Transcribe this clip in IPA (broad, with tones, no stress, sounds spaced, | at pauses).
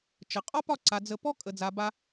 t͡ʃ ə˨ qʼ ɒ˦ p ɒ˦˨ ǀ a˨ d͡z ə˧ p ɔ˦ kʼ ə˨ d͡z a˨ b a˧